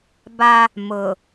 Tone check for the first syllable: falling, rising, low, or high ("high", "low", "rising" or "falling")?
high